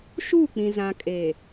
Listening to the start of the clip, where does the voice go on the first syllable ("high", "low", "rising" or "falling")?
falling